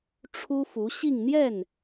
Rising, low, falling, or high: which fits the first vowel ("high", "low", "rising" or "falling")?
high